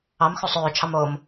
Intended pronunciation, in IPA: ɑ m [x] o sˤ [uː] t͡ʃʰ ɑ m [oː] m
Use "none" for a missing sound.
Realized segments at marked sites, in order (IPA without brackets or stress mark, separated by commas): x, øː, oː